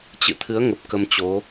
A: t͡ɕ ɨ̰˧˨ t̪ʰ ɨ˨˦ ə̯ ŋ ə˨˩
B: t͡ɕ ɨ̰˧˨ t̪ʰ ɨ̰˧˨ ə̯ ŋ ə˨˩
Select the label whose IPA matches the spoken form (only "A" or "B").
A